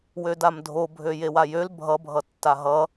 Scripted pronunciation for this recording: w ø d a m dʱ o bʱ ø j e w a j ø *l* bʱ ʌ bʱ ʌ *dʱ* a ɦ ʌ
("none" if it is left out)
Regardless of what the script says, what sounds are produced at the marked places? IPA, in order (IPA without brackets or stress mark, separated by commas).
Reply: l, tː